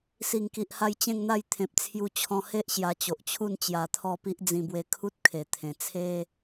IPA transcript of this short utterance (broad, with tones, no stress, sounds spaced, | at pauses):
s i˨˩ ŋ k i˨ ʔ h a˧ j t͡ɕ ẽ˥˧ ŋ n̪ a˥˧ j t̪ʰ ẽ˨ p̚ t͡sʰ j u˧ t͡ɕʰ ɔ̃˧ h e˦ ʔ ɕ j a˧ t͡ɕ o˨ ʔ t͡ɕʰ u˥˧ n t͡ɕ j a˧ t̪ʰ ɔ˥˧ p i˦ ʔ d͡z ĩ˧ b w e˧ kʰ u˦ t̚ kʰ e˨˩ t̪ʰ ẽ˨˩ t͡sʰ e˦